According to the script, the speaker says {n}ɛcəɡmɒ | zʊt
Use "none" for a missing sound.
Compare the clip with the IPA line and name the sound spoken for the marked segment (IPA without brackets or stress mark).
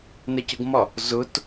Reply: n